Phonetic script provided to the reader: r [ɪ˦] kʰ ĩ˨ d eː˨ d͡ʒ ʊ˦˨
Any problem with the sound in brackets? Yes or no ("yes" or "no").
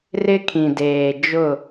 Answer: no